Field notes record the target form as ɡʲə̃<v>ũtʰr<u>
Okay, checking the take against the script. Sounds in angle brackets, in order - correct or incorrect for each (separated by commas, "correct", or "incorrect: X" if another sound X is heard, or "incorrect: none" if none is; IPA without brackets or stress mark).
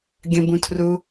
incorrect: b, correct